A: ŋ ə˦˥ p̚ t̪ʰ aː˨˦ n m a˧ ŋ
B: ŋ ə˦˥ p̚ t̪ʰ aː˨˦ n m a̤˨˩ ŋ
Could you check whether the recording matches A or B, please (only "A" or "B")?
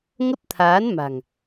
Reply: B